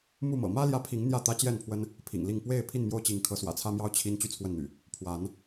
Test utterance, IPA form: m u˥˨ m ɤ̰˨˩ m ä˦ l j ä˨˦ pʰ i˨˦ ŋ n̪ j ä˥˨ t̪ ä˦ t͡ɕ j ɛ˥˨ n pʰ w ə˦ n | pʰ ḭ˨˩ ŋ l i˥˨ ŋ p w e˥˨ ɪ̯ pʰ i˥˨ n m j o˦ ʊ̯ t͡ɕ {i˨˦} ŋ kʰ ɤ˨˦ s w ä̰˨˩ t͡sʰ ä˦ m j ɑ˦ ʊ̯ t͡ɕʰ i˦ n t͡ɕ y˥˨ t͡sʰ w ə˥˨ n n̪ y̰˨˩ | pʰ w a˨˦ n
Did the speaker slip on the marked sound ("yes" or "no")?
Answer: no